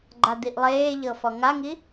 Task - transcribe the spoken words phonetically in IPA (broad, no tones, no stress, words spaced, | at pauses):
ɡ͡ǃad̪iʔlˠeːʎɤ fɔŋaŋi